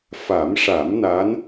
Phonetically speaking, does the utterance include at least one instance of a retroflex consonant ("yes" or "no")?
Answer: yes